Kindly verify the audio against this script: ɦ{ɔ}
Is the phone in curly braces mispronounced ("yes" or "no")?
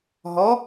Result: no